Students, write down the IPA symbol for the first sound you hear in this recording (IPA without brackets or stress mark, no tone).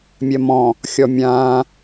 mʲ